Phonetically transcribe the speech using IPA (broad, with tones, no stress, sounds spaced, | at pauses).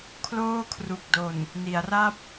kʰ l oː˥˩ kʰ r u˨˩ k̚ d o˨˩ n | n i˩˦ a̯ r a˥˩ p̚